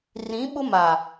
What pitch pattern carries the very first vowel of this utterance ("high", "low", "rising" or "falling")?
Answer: rising